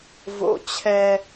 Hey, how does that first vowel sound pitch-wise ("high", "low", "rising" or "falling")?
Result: low